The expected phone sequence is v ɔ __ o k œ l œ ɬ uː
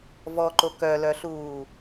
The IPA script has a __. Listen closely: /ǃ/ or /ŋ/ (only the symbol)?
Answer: ǃ